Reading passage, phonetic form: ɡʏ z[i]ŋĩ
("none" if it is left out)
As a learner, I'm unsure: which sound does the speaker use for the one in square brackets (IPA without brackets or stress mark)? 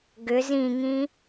ĩ